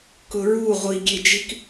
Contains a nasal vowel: no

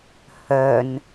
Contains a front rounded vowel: yes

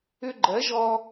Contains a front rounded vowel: yes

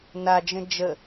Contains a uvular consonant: no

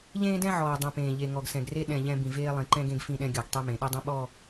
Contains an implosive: yes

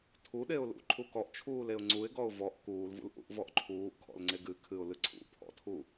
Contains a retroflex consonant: no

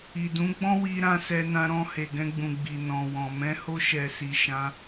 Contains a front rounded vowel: no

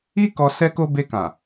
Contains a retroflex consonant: no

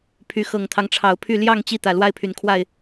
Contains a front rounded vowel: yes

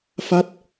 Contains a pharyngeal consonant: no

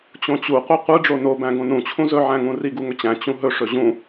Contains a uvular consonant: yes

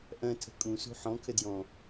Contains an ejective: yes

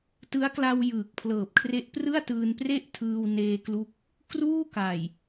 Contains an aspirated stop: yes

